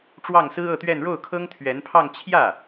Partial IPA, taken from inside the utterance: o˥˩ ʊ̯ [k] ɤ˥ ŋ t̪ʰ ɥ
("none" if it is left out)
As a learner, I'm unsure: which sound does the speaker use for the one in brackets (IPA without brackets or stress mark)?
kʰ